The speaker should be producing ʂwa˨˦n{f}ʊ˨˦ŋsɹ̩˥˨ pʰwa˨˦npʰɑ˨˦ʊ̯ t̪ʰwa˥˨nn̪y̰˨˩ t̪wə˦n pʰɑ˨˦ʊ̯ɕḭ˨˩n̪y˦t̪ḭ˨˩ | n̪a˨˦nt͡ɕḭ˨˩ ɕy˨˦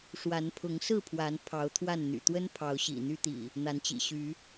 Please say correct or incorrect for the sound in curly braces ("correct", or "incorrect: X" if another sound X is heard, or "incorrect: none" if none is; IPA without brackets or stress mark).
incorrect: pʰ